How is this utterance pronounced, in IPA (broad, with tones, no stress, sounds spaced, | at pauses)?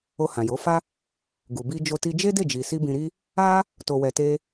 o˧ h ã˨ j o˨˦ f a˦ | ɡ u˨ b i˧ d͡ʒ o˧ t i˧ d͡ʒ e˦ d e˦˨ d͡ʒ i˨ s i˧ b ĩ˧ ɾ i˦ | a˦ | t o˨ w ɛ˨ t e˧